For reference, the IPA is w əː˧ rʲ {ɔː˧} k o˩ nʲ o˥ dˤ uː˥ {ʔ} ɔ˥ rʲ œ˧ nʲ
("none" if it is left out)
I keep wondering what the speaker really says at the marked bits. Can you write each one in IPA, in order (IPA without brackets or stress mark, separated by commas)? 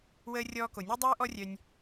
ɔː˧, ʔ